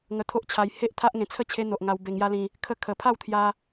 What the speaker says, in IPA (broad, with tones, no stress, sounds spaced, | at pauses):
ŋ ə˧ t̪ʰ o˦ ʔ t͡ɕʰ a˧ j h e˦ ʔ t̪ʰ a˦ ʔ ŋ ẽ˧ t͡sʰ ə˥˧ t͡ɕʰ e˦ n̪ o˨ ʔ ŋ a˧ w b e˧ ŋ j a˦ l ĩ˧ | kʰ ə˥˧ kʰ ə˨˩ pʰ a˥˧ w t̪ʰ j a˧